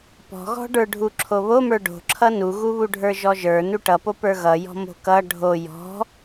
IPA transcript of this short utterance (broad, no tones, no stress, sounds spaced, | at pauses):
p ɔ̤ ɣ ɔ̤ ɖ ə˞ ɖʱ u ǁʰ o β o m ə˞ ɖ o̤ ǁʰ ʌ n u ɣ u β u ɖʱ ə˞ ʒ ɔ ʒ ə˞ n u ʈ ʌ p o p ə˞ ɣ ʌ j ɔ̤ m o̤ k ʌ ɖʱ o j ɔ̤